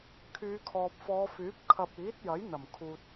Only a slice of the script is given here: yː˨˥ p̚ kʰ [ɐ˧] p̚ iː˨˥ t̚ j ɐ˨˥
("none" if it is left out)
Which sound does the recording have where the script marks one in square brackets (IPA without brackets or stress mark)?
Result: ɐ˨